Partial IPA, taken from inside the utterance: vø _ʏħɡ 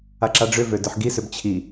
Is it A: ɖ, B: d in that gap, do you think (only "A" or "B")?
B